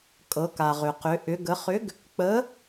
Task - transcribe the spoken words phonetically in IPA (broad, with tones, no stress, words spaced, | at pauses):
kʼɤ˩˧ka˩ʁʏ˩qʏ˩˧ ʔʏ˩˧ ɡə˩˧χʏ˨˥ɡ | k͡pə˨˥